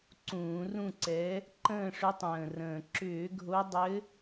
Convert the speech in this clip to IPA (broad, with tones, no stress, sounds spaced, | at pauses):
ǀ ũː˧˩˧ r ũ˦˨ ǀ ɛ˨˦ | ǃ ə̃ː˦˨ ʂ ʏ˨˦ tˤ ə̃ː˨˩ r ə̃ː˨˩ ǁ ʏː˧˩˧ ɡʱ o˨˦ dˤ ɘ˨˦